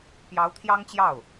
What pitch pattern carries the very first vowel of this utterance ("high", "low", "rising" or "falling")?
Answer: rising